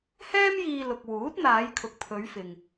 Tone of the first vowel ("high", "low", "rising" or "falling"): high